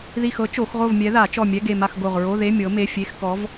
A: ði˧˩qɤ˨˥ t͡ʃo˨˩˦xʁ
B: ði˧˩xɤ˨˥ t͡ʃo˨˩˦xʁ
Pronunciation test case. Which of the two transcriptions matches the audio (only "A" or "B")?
B